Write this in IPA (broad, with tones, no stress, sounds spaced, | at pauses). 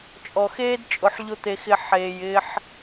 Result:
t͡ʃʼ ɔ˨ x eː˦ d t͡ʃʼ ʊ˨ ħ ʎ ʊ˦ t̪ e˧ x ɪ˧ ħ eː˨ j ɪː˦ ħ